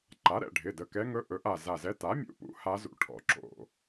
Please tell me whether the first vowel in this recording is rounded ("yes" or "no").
no